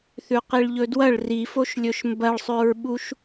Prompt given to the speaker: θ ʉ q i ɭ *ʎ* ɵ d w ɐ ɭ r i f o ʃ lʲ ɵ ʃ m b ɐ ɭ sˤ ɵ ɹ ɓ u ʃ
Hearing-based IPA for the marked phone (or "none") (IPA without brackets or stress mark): ʎ